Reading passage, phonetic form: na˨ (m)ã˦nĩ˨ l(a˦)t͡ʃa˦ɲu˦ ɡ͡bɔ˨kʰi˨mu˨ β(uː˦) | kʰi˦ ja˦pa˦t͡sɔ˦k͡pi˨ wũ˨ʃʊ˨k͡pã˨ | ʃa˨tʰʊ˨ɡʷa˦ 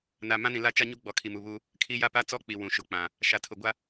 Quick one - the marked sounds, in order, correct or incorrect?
correct, correct, incorrect

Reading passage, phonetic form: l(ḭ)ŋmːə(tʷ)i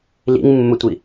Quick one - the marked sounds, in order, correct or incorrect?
correct, correct

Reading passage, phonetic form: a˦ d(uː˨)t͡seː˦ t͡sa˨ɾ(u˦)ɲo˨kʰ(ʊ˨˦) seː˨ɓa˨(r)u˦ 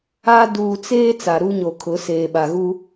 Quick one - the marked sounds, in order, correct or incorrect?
correct, correct, correct, incorrect

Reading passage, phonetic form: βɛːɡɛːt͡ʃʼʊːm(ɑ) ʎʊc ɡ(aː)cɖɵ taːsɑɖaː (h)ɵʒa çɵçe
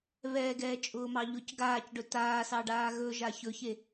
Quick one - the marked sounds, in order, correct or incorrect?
correct, correct, incorrect

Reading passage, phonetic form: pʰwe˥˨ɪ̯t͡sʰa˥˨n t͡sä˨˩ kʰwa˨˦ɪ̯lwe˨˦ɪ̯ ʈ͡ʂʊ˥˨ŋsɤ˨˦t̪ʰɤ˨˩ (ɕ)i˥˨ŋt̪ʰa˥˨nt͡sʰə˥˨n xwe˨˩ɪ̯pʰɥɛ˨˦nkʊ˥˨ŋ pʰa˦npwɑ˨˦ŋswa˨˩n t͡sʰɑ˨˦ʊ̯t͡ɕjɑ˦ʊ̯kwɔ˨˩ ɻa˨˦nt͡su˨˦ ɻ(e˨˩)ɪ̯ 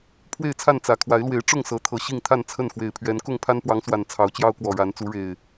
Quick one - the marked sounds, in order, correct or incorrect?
correct, correct

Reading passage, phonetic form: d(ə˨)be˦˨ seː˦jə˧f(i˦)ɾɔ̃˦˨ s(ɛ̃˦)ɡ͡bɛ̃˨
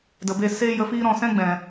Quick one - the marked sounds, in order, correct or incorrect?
correct, incorrect, correct

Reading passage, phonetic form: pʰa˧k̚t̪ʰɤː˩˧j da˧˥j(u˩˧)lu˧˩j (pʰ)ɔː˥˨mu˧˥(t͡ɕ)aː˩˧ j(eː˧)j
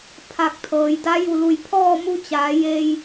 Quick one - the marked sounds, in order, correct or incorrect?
incorrect, correct, correct, correct

